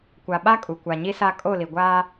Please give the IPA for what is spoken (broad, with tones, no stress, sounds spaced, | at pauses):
kʷ a˨ ɓ a˦ kʼ u˨ kʷ a˨ ɲ i˦ s a˦ kʼ o˦˨ l i˨ ɡʷ aː˦